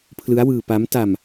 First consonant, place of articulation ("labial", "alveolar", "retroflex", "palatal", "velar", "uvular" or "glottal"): labial